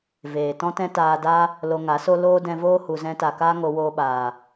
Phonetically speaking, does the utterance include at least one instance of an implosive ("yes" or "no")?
yes